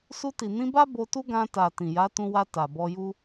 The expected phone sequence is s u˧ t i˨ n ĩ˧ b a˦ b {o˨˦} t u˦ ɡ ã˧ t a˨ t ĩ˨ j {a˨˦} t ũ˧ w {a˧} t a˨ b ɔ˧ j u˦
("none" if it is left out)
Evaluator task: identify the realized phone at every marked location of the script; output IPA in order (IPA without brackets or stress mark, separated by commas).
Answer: o˧, a˨˦, a˧